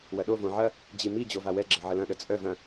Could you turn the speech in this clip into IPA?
w ɐ ɗ o v õ ʕ ɐ | d͡ʑ i m i d͡ʑ o v a w ɛ ɡ͡ǁ ə ʕ ə l ɐ̃ ɗ ə t͡sʼ œ v ɐ̃

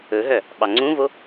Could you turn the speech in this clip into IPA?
ɵ ɦ œ | ɓ ɑ ŋ͡ǀ ũ v o

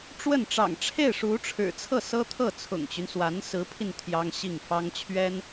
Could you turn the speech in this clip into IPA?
ʈ͡ʂ w ə˥˩ n ʈ͡ʂ ɑ̰˨˩ ŋ ʈ͡ʂʰ e˥˩ ɪ̯ ʂ u˧˥ ʈ͡ʂʰ ɻ̩˨˩ t͡sʰ ɤ˥˩ s ɤ˥ t̪ʰ ɤ˥˩ t͡sʰ ʊ̰˨˩ ŋ t͡ɕ y˦ n s w a˧˥ n s ɹ̩˧˥ pʰ i˧ n t̪ʰ j ɑ˥ ŋ ɕ i˥˩ ŋ f ɑ˥ ŋ t͡ɕʰ ɥ ɛ˥ n

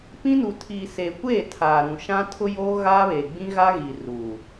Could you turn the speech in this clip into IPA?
p ĩ˦ n u˨ tʰ iː˨ s eː˨ kʷ eː˦˨ tʰ aː˨ ɾ ũ˨ ʃ ã˦ tʰ ʊ˦ j oː˦ ɣ aː˦ β eː˨ ɡ͡b ĩ˦ ɣ a˦ ɣ i˨ r uː˨

